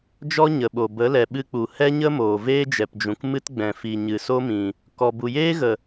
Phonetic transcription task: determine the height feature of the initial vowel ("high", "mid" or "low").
mid